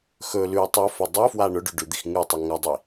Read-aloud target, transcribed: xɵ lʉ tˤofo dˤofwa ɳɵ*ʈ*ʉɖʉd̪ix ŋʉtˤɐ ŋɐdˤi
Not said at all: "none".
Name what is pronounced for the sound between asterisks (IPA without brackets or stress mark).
ɖ